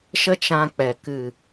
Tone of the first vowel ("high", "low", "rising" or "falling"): high